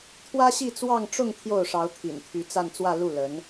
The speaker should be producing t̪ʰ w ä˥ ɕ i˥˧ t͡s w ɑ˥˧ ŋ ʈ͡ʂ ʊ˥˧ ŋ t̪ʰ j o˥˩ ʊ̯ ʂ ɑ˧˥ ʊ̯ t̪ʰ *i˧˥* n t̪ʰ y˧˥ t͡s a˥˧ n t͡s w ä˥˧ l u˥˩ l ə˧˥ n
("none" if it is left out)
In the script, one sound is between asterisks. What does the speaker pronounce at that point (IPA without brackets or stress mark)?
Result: ḭ˨˩